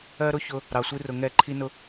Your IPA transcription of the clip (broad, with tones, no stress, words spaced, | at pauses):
ɜ˦ɾʊ˦çʊ˧ | ɾɑ˨sʷi˦rʊ˨ ŋɛ˦˨ ǃʰi˦nʊ˧